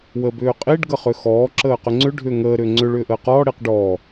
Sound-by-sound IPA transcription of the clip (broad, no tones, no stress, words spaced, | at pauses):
wəːbʏːqʼiɖ ɡəχʏxɔː ǁəːqʏŋ͡ǀʏ ɖʱʏːŋəː ɾʏːŋ͡ǀʏ ɭʏːʔəːqɔː ɽiqɖɔː